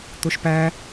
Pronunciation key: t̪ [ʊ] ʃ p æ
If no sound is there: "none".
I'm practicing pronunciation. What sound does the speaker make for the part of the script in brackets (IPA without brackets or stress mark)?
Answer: ʊ